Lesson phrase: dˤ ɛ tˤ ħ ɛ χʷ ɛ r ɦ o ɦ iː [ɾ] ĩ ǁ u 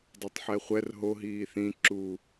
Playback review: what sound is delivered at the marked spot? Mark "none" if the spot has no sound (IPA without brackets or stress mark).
θ